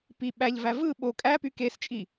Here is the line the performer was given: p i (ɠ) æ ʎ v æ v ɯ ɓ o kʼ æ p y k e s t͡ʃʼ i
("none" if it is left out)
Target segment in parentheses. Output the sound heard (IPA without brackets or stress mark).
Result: ɓ